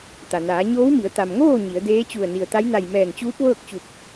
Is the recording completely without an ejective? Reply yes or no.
yes